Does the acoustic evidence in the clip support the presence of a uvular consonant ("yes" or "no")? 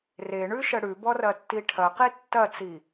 yes